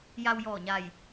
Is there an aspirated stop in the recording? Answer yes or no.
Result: no